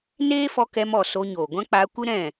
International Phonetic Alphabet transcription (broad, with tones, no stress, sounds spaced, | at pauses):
n eː˦ f ɔ˧ k ɛ˧ m ɔ˨ s o˧ ɲ oː˨ ɡʷ ã˦ k͡p aː˧ kʷ ɨ˦ ɾ ɛ̃˦˨